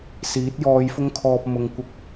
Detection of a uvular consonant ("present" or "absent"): absent